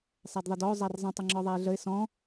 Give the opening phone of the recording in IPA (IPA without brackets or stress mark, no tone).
sˤ